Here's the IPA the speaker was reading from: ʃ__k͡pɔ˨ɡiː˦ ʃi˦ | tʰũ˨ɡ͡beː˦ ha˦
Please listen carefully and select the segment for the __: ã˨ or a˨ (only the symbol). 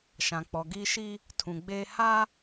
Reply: ã˨